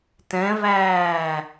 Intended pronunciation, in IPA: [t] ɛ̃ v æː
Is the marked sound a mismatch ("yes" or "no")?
no